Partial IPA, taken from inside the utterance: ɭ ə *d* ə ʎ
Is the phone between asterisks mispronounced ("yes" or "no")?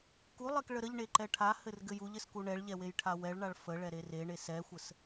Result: yes